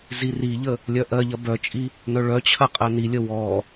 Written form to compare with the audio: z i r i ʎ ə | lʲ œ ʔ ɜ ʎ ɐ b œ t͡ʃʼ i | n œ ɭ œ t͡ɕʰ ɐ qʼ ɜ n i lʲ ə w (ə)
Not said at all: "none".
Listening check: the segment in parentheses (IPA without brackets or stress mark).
ɔ